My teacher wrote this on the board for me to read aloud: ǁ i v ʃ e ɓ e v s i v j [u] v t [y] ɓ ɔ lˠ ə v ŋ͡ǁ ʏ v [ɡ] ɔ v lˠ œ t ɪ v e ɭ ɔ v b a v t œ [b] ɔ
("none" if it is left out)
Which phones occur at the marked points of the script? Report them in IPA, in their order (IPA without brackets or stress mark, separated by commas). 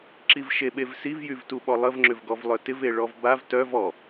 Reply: y, u, ɡ, v